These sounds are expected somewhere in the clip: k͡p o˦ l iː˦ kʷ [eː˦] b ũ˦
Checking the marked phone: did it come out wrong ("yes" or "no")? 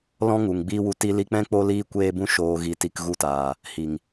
no